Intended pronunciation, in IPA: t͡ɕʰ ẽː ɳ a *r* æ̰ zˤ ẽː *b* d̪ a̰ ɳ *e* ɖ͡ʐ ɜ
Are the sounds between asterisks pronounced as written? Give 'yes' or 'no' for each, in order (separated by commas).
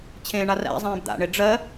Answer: yes, yes, yes